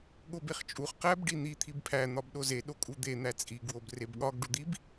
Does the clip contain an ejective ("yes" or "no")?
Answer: yes